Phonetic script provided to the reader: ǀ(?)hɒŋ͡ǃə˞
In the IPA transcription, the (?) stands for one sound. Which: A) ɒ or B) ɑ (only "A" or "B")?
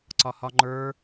A